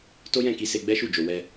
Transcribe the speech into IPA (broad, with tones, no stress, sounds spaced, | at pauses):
t o˦ j ɛ̃˦˨ k i˧ s e˧ ɡ͡b ɛ˦ ʃ u˦˨ d͡ʒ o˧ w ɛ˦